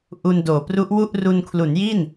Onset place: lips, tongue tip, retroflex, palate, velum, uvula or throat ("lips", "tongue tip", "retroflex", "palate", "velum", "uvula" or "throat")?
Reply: throat